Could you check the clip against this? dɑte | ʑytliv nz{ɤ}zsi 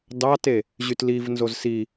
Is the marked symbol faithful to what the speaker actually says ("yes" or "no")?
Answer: no